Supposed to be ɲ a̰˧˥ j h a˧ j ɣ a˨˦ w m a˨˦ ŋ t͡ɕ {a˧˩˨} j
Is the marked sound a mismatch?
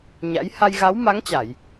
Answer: no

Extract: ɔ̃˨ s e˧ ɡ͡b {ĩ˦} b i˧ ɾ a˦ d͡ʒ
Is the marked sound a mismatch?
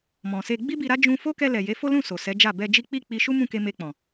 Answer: yes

